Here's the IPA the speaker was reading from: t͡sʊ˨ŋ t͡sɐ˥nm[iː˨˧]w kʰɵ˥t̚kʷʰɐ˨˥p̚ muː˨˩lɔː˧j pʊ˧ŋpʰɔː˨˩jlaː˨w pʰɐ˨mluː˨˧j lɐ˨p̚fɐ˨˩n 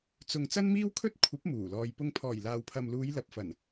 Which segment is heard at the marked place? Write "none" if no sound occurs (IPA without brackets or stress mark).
iː˥